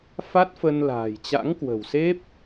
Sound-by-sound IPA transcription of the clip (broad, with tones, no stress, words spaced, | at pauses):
fa˦˥t̚fə˧nla̤ː˨˩j t͡ɕa̰˧˥ŋkwə̤˨˩wse˦˥p̚